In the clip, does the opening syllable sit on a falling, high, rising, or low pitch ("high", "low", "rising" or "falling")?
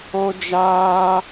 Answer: high